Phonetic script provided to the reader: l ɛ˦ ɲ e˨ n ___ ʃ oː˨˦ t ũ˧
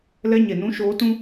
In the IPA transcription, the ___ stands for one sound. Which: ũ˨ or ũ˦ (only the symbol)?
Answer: ũ˦